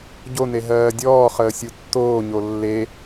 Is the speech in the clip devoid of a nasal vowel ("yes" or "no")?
yes